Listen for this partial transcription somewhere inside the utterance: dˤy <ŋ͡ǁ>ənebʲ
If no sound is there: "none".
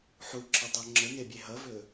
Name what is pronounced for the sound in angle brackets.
ŋ͡ǁ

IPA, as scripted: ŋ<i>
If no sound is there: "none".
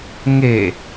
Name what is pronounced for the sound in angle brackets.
e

